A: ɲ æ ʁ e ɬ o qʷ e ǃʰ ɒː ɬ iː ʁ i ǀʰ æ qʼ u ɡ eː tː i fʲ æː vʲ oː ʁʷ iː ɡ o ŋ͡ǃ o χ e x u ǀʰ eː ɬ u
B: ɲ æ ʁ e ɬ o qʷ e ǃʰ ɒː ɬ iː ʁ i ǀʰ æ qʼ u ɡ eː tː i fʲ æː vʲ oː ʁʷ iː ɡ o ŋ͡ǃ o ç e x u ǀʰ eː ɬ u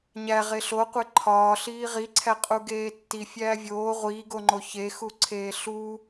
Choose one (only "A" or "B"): B